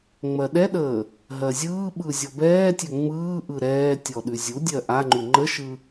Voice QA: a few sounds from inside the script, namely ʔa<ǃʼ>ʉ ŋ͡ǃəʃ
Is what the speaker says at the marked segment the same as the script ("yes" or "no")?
no